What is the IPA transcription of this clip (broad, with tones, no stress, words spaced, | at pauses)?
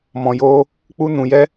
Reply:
mɔ̃˨joː˧ | k͡pu˦nũ˧jɛ˦